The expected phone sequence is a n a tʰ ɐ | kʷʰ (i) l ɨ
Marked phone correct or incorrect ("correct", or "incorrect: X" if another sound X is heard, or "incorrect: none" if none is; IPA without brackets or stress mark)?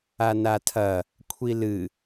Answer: correct